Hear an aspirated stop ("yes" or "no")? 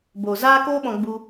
no